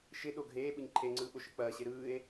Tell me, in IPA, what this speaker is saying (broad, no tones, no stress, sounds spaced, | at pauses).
ʃ ɪ ɗ o ɡʱ eː ɓ ɯ ɲ ǃʰ e ŋ͡ǀ ɯː ɓ o ʃ ɯ k͡p ɐː ɕ e ɾ ɯː e̯